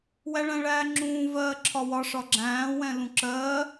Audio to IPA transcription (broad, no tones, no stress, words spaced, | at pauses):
wæɭæ̃ɭæːŋ͡ǁũː vɜːǁʰɒwɒ ʂɒɡ͡ǁæ̃ː wɛ̃lũǁɜː